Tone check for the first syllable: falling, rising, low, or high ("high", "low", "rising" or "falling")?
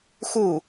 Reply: falling